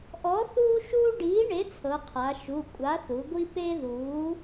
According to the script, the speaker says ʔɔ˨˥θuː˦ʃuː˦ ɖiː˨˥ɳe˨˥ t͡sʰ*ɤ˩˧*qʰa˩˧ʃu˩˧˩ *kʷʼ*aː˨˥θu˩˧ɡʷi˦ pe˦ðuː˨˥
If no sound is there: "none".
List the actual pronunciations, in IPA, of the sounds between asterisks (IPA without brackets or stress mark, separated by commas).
ɤ˩˧, kʷʼ